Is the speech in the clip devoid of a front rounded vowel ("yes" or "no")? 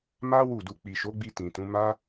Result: yes